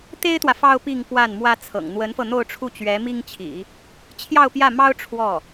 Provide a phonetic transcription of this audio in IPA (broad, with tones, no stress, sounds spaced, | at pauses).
t̪ e˥ ɪ̯ t̪ w ä˨ f ɑ˥ ʊ̯ p i˥˧ ŋ p w a˥˩ n m w ä˥ t͡sʰ ɤ̰˨˩ ŋ n̪ w ə˧˥ n f ɤ˧ n̪ o˥˧ ʊ̯ ʈ͡ʂʰ u˥˩ t͡ɕ ɥ ɛ˧˥ m i˥ ŋ t͡ɕʰ ḭ˨˩˦ | t͡ɕʰ j ɑ˥˧ ʊ̯ p j ä˥˩ m ɑ˥ ʊ̯ ʈ͡ʂʰ w ɔ˥˩